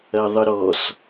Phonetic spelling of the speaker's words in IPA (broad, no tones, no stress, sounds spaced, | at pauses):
ɐ ðˤ ə ɾ ɔ s